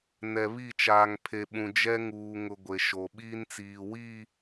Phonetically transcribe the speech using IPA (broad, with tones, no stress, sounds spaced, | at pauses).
n ɛ˨ β i˦˨ t͡ʃ aː˨ ŋ pʰ e˨ ɓ ũ˨ d͡ʒ ɛ˦ ŋ uː˨ ŋ ʊ˨ ɡʷ e˨ ʃ o˨ ɓ iː˦ n t͡s iː˨ w iː˦˨